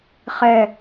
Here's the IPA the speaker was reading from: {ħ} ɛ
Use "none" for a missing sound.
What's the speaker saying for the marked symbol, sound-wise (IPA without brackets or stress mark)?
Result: χ